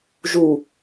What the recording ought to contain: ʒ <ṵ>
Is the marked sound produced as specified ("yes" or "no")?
no